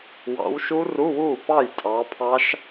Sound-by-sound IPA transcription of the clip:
w ɑ̰˨˦ w ʃ u˦˥ r u˧˥˧ w uː˥˩ p ɑ˥˩ j tʼ ɑ˨˦ pʰ ɑ˦˥ ʃ

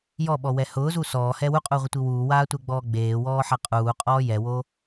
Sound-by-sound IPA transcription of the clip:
j ɔ ɓ ɔ w ɛ h ʊː z u s ɔː h ɛ w u qʼ uː ʁʷ ɪ tʷ i w uː w aː tʷ ɛ ɡ͡b ɔː ɡ͡b eː w ɔː ħ a qʼ uː qʼ ɔː j ɛ w o

